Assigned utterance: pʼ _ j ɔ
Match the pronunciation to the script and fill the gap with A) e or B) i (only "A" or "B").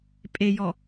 A